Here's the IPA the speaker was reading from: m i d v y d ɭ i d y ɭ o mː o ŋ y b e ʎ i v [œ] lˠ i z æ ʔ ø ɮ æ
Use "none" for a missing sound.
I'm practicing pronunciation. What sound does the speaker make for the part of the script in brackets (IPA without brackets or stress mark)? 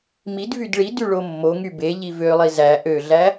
ø